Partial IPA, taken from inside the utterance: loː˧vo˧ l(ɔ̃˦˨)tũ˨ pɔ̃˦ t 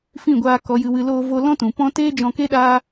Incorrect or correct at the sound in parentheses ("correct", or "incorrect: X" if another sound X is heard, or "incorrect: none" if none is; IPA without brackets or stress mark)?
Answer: incorrect: ɔ̃˦